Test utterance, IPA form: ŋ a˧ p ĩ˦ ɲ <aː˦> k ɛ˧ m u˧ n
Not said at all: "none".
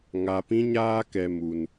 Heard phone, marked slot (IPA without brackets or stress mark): aː˦